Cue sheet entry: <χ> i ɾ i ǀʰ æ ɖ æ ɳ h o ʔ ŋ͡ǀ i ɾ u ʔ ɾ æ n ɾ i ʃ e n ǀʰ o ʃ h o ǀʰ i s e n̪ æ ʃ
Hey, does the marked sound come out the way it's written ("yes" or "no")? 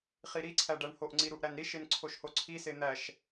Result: yes